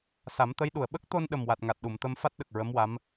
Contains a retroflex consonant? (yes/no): no